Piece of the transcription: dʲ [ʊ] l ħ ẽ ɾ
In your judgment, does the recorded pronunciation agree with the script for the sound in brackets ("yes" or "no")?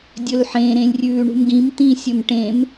no